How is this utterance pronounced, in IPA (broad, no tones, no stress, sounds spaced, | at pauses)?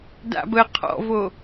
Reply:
d a̰ b ə qʰ ɔ̰ v o